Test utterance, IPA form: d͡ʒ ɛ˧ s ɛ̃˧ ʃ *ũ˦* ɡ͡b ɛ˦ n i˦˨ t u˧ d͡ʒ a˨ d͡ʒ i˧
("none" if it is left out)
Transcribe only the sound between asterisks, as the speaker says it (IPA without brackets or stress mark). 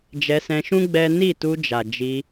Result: ũ˦